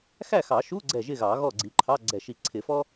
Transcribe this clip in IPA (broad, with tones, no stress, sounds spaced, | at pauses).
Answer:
x æ˥˨ x ɑ˨˩˦ ʃ u˧˥˧ ɡ͡ǀ ɛ˧˩ ʒ ɪ˥˨ ɣ ɑ˨˩˦ ɣ ɔ˥˨ ɡ͡ǀ i˨˦ ǃʰ ɑ˧˥˧ ɡ͡ǀ ɛ˧˩ ʃ i˧˩ ǀʰ ɪ˨˩˦ f ɔ˥